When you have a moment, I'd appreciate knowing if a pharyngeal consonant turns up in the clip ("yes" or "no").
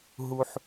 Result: yes